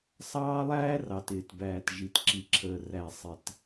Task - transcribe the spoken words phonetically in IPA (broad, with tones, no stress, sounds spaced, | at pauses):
sˤ ɑː˦ lˠ æː˦ r ɑ˨ t ɪː˨ t b æː˨ t ʒ i˨ t ǁ i˨ ǁʰ əː˨ r æ˨ sˤ ɪ˨ t